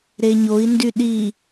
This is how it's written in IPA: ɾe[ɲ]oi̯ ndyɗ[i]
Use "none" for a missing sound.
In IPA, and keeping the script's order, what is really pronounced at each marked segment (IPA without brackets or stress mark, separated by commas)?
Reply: ɲ, i